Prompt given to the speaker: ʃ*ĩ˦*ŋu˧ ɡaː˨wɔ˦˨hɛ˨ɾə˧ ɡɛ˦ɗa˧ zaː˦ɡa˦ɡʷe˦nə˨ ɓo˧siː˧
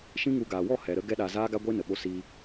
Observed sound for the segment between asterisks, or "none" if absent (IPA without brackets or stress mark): ĩ˦